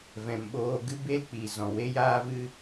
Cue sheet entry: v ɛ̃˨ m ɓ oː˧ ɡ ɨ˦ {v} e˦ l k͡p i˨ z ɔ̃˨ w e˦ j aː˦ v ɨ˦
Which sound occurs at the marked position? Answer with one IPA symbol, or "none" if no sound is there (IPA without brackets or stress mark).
b